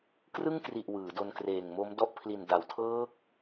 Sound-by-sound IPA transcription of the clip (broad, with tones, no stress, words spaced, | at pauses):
krɯ˥˩ŋkri˨˩ʔ wɯː˩˦do˧nkreː˨˩ŋmo˦˥m dɔ˥˩ʔ pʰli˨˩n da˩˦wtʰɤː˦˥k̚